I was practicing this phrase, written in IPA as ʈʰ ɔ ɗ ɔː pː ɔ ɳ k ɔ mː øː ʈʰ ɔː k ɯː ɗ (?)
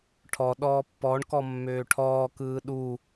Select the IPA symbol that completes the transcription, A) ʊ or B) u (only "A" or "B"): B